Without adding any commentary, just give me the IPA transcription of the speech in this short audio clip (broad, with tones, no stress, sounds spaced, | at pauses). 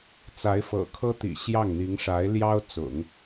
t͡s a˧˥ ɪ̯ f ɤ̰˨˩ kʰ ɤ˥ t̪ ḭ˨˩ ɕ j ɑ˥˩ ŋ n̪ i˧˥ ŋ ʂ a˧˥ ɪ̯ l j ɑ˥ ʊ̯ t͡s ʊ̰˨˩˦ ŋ